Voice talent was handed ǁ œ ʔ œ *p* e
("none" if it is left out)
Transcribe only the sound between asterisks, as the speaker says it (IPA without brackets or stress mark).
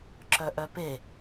p